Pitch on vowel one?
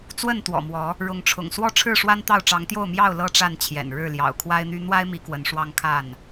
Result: falling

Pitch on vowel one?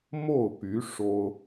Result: falling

